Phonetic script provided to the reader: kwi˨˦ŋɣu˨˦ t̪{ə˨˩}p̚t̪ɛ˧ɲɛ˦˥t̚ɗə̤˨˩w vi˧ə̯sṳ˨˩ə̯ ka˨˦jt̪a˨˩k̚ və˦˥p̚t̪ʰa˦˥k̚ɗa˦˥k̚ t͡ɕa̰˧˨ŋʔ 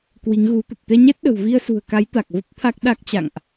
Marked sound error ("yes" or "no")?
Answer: no